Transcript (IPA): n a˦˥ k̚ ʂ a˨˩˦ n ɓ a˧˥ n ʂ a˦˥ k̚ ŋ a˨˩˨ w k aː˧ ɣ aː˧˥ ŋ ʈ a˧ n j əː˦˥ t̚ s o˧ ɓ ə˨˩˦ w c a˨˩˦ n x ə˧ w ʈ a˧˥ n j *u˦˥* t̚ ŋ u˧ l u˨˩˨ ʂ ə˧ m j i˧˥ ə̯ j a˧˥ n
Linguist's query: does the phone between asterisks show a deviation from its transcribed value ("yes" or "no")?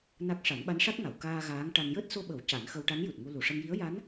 yes